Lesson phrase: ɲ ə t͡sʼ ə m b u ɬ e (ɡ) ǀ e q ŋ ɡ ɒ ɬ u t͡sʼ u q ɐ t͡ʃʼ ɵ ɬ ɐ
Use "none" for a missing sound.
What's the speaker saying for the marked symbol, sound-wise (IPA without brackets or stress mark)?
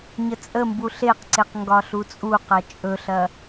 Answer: q